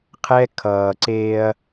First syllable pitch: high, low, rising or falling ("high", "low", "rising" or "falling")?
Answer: high